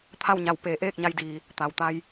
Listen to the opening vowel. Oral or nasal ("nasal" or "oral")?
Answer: oral